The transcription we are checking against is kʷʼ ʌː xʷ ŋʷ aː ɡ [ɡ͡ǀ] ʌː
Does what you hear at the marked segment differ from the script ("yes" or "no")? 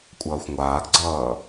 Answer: no